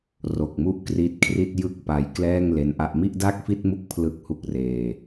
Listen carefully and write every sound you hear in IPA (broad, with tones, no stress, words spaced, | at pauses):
ro˨˩k̚mu˥˩ʔkri˦˥t̚kʰri˥˩t̚ jɯ˥˩k̚pa˧j klɛː˥˩ŋ le˦˥nʔa˥˩ʔ mi˥˩ʔda˥˩k̚fi˥˩t̚mu˦˥k̚ pʰlɯ˥˩k̚hu˥˩k̚reː˧